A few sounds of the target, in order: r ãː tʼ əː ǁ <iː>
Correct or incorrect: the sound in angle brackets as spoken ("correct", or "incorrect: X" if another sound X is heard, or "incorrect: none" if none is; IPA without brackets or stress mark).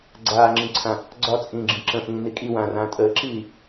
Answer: correct